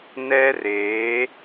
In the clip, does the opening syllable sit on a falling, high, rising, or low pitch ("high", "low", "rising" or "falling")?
high